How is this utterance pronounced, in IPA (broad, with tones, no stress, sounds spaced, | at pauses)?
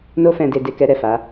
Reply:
n o˦ f ɛ̃˧ d e˧ d e˧ k ɛ˧ ɾ ɛ˨ f a˨˦